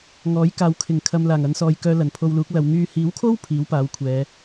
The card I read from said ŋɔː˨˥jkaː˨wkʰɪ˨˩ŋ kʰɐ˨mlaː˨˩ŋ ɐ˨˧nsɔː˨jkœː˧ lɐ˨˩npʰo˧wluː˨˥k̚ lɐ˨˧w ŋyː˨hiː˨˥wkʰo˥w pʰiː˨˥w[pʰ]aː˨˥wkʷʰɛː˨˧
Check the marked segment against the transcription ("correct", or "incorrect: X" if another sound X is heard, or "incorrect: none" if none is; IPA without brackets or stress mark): incorrect: p